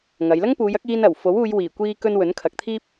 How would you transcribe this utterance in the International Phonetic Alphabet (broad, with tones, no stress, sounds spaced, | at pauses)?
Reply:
ŋ ɐ˨˧ j l ɐ˥ ŋ p uː˨˧ j ɐ˨˥ k̚ iː˧ n ɐ˨˩ w f o˨˥ w uː˨˧ j w iː˨˩ kʷ iː˧ k ɵ˧ n w ɵ˨˥ n kʰ ɐ˨˥ k̚ t̪ʰ iː˥ p̚